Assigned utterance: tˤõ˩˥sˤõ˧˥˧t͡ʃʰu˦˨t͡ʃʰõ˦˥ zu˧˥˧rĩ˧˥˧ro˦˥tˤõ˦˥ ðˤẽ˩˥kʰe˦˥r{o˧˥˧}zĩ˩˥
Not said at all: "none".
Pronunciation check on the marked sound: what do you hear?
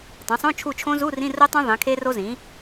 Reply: o˦˥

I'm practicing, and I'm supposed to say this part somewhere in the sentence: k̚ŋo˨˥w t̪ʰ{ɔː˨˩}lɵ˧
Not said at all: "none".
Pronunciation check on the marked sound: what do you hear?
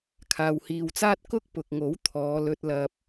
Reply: ɔː˨˧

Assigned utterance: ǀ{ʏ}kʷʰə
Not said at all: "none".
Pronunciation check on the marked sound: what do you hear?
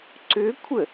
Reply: ʏ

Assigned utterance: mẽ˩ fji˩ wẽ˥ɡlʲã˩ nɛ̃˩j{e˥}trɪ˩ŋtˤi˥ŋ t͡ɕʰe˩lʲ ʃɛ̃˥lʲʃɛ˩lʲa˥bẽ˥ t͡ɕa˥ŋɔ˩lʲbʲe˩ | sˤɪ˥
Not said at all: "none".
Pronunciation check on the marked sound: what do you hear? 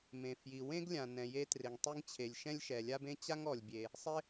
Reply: e˥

